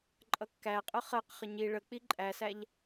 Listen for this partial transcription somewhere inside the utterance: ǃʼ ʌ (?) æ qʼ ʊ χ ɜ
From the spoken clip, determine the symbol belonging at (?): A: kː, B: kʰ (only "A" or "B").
A